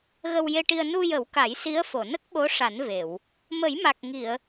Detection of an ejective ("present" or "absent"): absent